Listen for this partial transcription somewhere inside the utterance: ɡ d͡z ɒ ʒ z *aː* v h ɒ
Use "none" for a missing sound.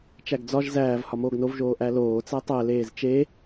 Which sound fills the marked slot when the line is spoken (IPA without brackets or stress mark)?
æː